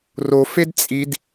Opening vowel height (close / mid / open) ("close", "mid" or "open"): mid